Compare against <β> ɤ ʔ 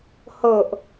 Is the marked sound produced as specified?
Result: no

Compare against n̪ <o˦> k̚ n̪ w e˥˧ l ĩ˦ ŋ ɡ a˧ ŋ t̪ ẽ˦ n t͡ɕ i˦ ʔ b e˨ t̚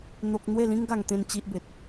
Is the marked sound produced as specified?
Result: yes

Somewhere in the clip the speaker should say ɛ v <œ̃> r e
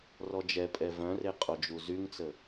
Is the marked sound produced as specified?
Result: yes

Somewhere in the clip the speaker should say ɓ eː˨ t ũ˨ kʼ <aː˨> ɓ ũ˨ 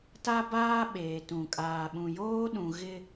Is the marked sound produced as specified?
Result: yes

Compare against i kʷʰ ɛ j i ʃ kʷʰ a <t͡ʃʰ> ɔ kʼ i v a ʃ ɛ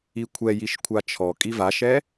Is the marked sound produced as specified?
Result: yes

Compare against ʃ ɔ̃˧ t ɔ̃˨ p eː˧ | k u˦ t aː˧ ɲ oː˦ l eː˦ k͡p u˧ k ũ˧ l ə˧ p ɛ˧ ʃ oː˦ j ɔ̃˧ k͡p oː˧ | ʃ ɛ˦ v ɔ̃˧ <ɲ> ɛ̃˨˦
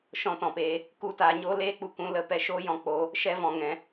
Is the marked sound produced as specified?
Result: no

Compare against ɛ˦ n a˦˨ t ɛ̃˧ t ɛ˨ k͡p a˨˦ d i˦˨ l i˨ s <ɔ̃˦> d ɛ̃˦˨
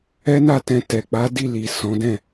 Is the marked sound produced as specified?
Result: no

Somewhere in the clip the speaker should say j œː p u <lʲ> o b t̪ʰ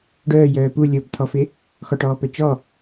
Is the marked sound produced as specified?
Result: yes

